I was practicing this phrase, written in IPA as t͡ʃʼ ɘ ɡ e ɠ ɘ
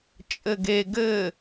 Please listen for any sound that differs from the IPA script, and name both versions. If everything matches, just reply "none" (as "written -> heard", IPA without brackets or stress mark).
ɠ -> ɡ